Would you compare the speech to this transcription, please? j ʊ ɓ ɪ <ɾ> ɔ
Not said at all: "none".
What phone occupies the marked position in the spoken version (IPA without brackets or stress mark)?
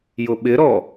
ɾ